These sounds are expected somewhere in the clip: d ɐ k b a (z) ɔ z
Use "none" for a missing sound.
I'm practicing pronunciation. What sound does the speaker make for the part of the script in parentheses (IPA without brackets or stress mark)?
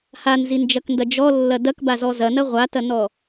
z